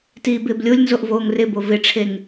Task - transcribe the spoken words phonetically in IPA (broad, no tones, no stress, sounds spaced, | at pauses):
t iː b ɪː b lʲ o lʲ n z o ʔ v oː ŋ r ɪ b o v ɪ ʈ͡ʂʰ e ŋ